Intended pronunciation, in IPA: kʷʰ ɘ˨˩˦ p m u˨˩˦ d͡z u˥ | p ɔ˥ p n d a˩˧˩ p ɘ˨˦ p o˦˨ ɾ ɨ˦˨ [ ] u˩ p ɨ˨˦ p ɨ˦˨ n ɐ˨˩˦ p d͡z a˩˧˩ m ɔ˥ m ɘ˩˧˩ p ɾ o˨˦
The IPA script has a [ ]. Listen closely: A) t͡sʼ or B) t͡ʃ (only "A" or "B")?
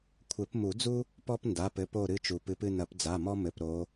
B